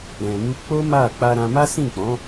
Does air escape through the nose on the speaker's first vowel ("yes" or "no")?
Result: yes